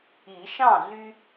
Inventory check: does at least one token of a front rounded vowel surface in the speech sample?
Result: yes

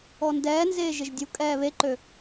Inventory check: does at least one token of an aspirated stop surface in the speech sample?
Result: no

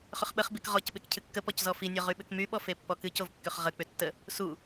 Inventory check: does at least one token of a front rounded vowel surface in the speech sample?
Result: yes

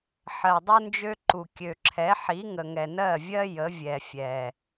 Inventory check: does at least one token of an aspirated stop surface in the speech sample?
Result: yes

